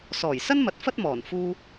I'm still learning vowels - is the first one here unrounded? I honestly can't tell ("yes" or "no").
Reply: no